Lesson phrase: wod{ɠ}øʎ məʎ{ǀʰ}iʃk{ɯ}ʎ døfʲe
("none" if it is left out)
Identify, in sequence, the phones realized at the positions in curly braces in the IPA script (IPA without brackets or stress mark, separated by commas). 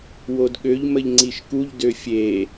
ɠ, ŋ͡ǀ, u